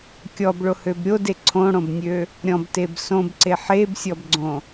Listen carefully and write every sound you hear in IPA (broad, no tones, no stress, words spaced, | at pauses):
kʲɔbɭohøb ɾʲode ǀʰõɽõbnʲø | ɾʲɔ̃bteb sõbǀe ħebsʲɔbɡ͡ǀõ